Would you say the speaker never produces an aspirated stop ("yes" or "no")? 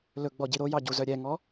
yes